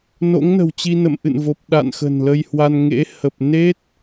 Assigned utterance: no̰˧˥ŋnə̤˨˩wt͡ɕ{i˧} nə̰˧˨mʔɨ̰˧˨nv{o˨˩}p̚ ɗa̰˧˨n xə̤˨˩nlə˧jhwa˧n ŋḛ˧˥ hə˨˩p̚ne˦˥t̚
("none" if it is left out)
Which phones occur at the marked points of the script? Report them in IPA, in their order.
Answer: i˧, o˨˩

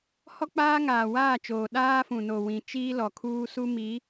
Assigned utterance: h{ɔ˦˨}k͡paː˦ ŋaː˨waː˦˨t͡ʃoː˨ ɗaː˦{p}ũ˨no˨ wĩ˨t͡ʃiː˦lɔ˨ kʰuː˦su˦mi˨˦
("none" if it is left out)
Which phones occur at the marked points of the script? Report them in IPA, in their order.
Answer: ɔ˦, f

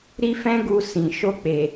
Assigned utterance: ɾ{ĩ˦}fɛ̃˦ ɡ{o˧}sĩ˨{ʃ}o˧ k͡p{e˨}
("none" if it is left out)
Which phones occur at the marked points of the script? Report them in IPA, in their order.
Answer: i˦, u˧, ʃ, e˨

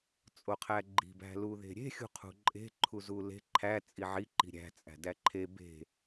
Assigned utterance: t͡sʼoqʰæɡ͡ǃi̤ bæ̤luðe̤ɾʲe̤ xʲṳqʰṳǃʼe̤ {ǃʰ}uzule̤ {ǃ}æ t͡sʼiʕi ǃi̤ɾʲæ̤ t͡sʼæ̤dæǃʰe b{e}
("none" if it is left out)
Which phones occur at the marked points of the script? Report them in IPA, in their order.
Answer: ǃʰ, ǃʰ, e̤

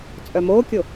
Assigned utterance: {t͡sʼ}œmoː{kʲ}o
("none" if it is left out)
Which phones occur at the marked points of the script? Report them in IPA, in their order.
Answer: t͡sʼ, kʲ

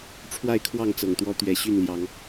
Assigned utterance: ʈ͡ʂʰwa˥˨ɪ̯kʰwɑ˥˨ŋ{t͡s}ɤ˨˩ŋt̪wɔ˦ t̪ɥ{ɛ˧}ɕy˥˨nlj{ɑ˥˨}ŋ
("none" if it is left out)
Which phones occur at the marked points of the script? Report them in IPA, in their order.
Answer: t͡s, ɛ˨˩, ɑ˨˦

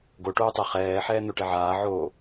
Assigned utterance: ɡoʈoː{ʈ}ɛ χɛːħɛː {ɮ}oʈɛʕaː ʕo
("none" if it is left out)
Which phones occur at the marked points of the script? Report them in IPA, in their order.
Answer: tˤ, n̪

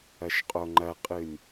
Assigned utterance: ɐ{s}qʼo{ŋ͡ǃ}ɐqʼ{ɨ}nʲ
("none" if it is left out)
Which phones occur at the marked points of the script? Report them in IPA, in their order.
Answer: ʃ, ŋ͡ǃ, ɨ

